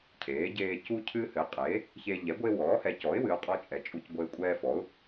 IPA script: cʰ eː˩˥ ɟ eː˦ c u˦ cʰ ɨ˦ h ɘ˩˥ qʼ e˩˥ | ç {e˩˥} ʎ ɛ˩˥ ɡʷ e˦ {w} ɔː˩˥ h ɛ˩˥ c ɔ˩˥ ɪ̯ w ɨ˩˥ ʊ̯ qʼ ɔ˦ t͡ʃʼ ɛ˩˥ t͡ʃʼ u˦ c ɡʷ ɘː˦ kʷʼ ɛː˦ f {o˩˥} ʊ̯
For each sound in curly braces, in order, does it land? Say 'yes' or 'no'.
no, yes, no

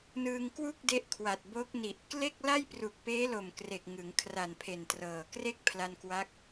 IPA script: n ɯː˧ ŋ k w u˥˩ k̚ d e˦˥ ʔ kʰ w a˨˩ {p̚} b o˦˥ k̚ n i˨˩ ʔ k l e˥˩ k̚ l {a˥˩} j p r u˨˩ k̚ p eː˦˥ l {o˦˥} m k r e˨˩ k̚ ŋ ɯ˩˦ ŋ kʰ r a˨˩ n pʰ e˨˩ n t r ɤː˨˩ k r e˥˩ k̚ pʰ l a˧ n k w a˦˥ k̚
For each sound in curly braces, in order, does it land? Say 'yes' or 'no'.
no, yes, no

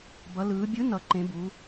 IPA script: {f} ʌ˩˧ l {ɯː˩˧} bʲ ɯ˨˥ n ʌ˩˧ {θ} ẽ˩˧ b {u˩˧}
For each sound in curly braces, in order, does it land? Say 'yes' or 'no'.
no, yes, no, yes

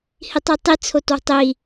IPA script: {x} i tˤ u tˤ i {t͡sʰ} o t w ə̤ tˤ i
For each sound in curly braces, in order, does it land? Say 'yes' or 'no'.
no, yes

